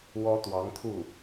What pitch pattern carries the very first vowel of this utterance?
high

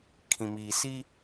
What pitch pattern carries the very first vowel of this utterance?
low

